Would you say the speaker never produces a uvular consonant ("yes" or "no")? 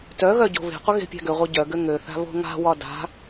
no